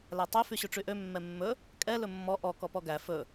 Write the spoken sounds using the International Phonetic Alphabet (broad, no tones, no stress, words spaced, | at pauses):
lætˤø fyɕʉʈ͡ʂyʔø mːɛmːɵ | kʼɛ lɵmːɔ ʔɔ kɔpɔɡæ fɵ